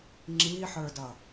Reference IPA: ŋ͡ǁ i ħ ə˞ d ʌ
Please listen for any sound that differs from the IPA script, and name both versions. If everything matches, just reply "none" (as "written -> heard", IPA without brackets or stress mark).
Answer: none